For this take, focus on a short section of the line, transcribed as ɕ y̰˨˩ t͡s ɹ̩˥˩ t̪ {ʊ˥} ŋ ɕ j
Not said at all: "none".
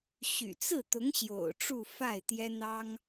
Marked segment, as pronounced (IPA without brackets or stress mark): ʊ˧˥